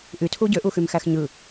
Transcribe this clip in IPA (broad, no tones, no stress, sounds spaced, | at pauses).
ʔ y tʰ u ɟ ø ʔ u x y m x æ x ɲ ɯ